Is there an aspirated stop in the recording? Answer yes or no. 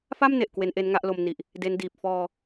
no